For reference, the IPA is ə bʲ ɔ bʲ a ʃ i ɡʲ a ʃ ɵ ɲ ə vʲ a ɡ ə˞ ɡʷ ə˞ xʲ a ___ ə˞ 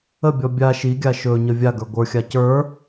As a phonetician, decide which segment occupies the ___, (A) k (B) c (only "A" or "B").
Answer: B